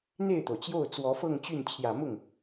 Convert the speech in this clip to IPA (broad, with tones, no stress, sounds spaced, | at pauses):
n̪ e˥˩ ɪ̯ t̪ o˩ ʊ̯ t͡ɕ j o˥˩ ʊ̯ t͡s w ɔ˧˥ f ɤ˥˧ ŋ t͡ɕ y˥˩ n t͡ɕʰ j ä˨˩ m ʊ˥˩ ŋ